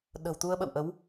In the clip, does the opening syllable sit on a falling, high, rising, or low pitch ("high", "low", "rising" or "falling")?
low